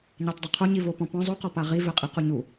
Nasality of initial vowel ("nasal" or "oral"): oral